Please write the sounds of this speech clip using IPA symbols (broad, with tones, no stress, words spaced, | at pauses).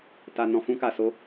ta˨ nɔ̃˨fũ˧ka˨ so˨˦